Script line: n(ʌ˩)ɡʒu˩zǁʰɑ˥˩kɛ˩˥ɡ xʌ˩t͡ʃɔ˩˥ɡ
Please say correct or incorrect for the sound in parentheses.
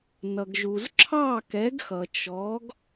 correct